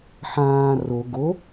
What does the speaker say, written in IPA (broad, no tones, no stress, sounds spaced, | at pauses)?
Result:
ħ ãː r o ɡ o